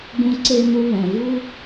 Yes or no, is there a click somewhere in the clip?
yes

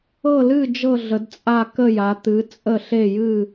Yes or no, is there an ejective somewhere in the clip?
yes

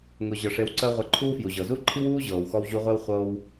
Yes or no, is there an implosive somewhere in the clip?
no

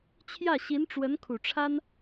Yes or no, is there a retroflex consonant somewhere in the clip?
yes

